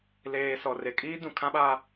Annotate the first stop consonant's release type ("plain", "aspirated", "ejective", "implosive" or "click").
ejective